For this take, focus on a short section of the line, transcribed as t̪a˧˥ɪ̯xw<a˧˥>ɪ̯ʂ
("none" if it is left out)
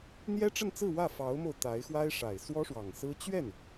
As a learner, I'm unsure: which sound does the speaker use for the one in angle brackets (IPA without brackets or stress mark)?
a˥